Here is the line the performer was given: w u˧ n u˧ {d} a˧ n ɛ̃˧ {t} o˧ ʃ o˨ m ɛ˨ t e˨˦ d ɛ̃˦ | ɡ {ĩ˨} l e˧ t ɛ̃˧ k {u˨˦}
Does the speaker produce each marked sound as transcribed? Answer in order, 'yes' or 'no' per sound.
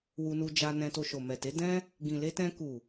no, yes, yes, no

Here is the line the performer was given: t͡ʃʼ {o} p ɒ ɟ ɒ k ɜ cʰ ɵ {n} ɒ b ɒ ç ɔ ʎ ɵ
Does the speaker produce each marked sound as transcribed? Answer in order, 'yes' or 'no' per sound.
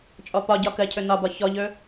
no, yes

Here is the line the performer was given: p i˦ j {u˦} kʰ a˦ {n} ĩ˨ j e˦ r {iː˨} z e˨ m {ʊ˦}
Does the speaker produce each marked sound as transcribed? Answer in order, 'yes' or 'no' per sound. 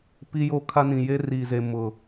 no, yes, yes, no

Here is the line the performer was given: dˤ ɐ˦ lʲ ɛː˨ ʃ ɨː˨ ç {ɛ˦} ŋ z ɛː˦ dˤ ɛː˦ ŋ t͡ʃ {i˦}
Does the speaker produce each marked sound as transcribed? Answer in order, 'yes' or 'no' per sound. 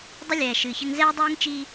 no, yes

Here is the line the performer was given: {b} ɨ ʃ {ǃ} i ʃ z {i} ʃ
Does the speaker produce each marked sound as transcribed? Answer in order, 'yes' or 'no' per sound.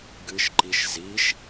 no, yes, yes

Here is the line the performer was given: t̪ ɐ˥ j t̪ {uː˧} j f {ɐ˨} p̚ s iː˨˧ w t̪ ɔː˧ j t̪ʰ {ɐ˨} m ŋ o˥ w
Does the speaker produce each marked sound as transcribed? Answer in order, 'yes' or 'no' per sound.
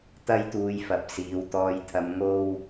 yes, yes, no

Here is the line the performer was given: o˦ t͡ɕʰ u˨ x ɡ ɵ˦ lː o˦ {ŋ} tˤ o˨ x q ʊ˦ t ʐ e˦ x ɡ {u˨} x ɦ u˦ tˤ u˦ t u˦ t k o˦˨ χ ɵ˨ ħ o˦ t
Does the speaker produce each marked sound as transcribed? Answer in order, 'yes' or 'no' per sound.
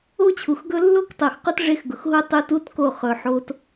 no, no

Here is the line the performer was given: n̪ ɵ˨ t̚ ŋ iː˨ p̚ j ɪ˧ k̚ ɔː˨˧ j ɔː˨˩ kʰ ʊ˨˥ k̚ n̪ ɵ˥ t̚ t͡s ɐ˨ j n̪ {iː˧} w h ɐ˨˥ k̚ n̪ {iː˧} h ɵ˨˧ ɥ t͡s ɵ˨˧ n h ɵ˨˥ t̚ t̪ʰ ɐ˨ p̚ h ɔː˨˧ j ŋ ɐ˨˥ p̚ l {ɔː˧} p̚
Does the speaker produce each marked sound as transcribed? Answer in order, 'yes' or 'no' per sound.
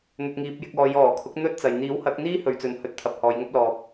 no, no, no

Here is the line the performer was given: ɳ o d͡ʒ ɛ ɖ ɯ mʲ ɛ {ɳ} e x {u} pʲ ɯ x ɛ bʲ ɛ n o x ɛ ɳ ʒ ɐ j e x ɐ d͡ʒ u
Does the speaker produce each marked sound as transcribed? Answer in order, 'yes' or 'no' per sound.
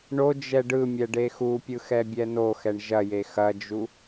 no, yes

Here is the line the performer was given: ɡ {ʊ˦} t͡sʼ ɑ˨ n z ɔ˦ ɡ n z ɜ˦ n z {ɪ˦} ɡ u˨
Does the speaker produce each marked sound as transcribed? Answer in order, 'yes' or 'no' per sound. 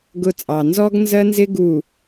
yes, yes

